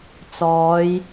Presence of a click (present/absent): absent